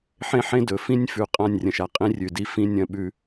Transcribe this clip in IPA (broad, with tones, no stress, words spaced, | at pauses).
ħẽ˦ħẽ˦dɵ˨fĩ˦nʲ fʉ˨ qʼã˦˨nʲrʲɐ̃˨ʃa˨ qʼĩ˦rʲʉ˨di˦ fĩ˦ nʲɐ̃˦ɓʉ˦